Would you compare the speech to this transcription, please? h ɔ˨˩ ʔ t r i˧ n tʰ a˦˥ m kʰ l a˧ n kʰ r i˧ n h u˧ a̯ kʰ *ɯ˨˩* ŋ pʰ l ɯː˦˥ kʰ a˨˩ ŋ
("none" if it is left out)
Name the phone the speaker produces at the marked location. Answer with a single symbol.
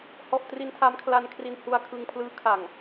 ɯ˧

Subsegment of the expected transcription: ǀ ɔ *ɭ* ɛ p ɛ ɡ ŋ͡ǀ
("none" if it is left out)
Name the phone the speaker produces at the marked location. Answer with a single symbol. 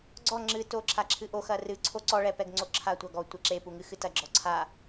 ɭ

